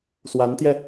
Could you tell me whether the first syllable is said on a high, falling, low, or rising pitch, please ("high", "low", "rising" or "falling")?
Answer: rising